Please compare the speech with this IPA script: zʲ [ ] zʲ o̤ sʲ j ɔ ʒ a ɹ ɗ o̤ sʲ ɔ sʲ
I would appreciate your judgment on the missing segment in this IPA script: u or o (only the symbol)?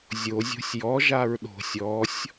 o